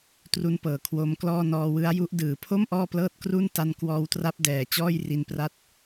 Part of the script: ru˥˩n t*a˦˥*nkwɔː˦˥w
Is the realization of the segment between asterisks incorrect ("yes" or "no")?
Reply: no